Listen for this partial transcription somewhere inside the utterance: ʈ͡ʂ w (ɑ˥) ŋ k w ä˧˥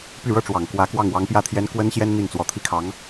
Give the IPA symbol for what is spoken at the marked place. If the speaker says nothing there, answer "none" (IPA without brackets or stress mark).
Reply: ɑ˨˩